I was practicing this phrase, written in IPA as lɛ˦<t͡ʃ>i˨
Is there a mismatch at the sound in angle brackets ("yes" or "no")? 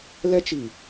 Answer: no